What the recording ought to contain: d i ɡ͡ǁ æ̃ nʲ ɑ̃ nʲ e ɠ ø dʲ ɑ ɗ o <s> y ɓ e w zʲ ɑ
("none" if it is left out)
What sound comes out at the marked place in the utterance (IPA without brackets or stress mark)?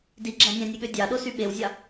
s